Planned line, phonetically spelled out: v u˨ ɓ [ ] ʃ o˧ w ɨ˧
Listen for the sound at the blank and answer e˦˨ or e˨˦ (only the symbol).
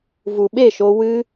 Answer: e˦˨